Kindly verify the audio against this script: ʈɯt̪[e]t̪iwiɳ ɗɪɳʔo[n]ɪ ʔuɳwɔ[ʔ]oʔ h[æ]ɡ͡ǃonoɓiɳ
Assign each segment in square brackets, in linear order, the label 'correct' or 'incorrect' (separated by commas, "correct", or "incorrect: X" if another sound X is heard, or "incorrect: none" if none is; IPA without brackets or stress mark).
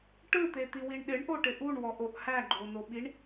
correct, incorrect: ʈ, correct, correct